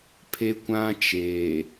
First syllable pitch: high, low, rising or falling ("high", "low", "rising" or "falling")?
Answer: high